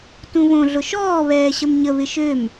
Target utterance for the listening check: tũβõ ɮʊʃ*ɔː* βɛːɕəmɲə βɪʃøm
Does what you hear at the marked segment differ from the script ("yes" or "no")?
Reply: no